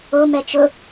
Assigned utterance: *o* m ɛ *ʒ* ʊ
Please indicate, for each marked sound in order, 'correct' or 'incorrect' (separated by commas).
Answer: correct, incorrect